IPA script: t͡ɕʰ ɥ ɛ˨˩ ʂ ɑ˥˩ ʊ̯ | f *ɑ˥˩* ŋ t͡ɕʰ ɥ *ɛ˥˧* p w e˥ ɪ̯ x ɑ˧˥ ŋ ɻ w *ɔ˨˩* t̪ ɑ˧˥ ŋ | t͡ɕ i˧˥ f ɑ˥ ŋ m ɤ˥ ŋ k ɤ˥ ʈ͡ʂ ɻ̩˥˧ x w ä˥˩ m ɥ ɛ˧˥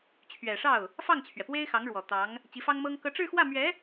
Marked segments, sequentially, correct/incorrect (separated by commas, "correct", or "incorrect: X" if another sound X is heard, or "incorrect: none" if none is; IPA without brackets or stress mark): correct, incorrect: ɛ˩, correct